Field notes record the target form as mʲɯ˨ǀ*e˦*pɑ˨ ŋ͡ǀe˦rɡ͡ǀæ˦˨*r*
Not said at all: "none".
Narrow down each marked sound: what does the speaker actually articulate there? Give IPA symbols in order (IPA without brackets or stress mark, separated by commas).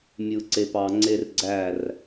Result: e˨, r